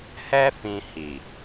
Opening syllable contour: high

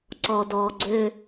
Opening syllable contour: low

